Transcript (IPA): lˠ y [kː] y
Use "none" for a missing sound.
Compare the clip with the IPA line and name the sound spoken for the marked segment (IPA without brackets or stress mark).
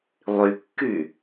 kː